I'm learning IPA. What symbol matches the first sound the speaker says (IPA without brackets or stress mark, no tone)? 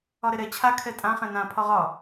ɒ